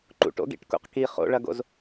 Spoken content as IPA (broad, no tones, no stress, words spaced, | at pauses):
ǃṵʈo̰ɡḭʈkṵq ki χo̰ɭɐɡo̰z